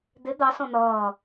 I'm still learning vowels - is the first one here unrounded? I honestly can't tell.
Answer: yes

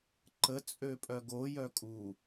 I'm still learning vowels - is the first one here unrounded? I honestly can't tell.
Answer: yes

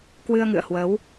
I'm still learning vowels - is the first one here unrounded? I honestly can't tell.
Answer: yes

